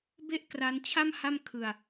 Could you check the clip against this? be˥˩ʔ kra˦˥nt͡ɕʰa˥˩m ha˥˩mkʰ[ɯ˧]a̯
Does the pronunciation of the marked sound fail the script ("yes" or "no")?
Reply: no